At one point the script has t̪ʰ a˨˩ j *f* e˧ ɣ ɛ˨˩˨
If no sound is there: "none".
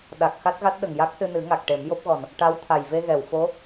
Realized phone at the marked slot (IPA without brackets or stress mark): v